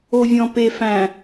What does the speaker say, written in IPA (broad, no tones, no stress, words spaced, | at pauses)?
ovʲɔ̃pefæ̃